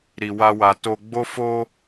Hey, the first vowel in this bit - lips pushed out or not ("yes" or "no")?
no